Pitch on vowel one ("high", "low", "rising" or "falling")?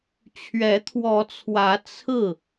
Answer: rising